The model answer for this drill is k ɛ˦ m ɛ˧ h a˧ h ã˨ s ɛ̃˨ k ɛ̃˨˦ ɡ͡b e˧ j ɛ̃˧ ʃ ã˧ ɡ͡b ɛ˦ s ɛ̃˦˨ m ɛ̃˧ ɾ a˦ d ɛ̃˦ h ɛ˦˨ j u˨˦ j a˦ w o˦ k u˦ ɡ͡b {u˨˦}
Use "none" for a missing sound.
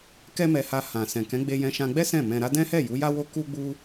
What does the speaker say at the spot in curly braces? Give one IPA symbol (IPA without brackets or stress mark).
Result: u˦